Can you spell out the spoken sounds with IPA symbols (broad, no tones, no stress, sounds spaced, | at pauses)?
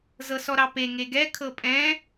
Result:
z ɤ s ɔ ɾ ɑ p e ŋ e ɡ ɛ kʰ ɤ pʼ ɛ̃